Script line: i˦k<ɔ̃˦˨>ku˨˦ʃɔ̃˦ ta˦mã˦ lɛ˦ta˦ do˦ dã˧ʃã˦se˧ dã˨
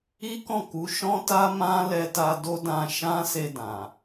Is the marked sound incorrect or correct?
correct